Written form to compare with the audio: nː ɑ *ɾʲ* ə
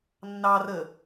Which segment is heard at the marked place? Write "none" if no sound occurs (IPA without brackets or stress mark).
r